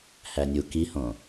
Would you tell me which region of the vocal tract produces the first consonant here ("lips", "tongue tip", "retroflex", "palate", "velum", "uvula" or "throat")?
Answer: throat